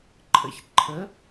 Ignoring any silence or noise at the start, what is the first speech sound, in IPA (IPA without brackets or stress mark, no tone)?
ǃʰ